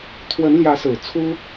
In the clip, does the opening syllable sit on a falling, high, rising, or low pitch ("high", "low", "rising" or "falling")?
rising